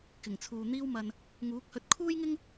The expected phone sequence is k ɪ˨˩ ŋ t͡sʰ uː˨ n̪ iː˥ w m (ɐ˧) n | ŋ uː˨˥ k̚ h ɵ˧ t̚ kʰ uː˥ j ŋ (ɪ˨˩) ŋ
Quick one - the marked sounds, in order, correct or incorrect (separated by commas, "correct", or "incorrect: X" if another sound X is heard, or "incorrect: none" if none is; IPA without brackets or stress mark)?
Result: correct, incorrect: ɪ˥